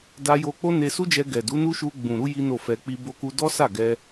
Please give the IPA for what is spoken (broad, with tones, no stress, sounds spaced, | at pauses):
d a˧ j o˧ k͡p o˦ n e˧ s u˦ d͡ʒ ɛ˧ ɡ ɛ˨ d u˨˦ n u˦ ʃ u˧ ɡ͡b ũ˨ ɾ u˧ j i˦ n o˦˨ f ɛ˧ k͡p i˦ b o˦ k u˦ d ɔ˦ s a˦˨ ɡ ɛ˧